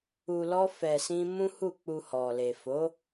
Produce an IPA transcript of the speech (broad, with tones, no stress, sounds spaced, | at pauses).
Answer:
u˧ l ɔ˦ f ɛ˧ s ĩ˦ m ũ˦ h u˦˨ k͡p u˧ h ɔ˨ l e˨ f o˨˦